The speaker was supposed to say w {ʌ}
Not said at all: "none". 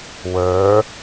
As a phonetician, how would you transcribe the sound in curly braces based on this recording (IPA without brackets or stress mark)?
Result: ə˞